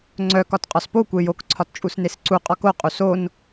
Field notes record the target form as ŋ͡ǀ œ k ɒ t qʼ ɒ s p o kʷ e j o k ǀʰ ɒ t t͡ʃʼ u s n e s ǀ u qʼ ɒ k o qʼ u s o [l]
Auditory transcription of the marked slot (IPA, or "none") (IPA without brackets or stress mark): n